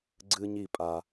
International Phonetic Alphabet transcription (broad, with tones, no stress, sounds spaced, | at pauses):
ɡ͡ǀ ɨː˦ ɲ iː˨ pʼ a˨